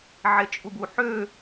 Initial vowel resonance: oral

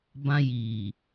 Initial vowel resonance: nasal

